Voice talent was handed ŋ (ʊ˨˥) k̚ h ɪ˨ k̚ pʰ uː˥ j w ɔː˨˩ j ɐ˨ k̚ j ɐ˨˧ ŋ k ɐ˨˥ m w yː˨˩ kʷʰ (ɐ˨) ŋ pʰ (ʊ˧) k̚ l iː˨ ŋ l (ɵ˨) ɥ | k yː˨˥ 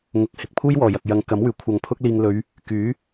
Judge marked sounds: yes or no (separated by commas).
no, yes, yes, no